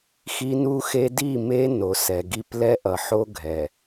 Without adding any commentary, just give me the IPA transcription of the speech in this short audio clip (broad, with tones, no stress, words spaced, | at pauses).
xi˦nu˦xe˦ di˦˨me˦ no˨sɛ˨ɡi˦p lɛ˦ʔʌ˨ħo˦ ɡʱɛ˨